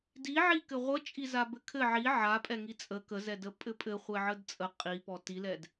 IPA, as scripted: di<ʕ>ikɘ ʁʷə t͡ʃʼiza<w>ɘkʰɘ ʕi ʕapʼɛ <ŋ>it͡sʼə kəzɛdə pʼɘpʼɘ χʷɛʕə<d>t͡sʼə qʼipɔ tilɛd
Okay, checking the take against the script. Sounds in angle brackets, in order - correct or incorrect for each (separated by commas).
correct, incorrect, correct, correct